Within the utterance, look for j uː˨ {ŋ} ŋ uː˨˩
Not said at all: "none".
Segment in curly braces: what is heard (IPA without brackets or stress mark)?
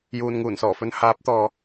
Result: n